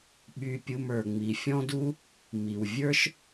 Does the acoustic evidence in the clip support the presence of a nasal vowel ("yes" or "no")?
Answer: yes